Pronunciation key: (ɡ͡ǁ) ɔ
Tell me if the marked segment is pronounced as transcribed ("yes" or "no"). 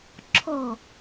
no